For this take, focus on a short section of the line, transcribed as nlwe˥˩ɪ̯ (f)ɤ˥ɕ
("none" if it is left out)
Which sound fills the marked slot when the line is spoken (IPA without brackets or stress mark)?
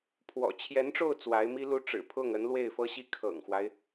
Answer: f